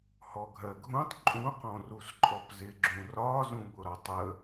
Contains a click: yes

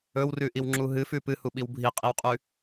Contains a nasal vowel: no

